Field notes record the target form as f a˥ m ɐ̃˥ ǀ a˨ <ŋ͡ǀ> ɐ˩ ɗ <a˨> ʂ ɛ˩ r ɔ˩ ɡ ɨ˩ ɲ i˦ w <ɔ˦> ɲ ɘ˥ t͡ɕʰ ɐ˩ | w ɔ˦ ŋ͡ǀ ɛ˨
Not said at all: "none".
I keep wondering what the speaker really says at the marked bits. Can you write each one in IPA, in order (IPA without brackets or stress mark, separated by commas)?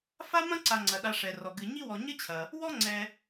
ŋ͡ǀ, a˨, ɔ˨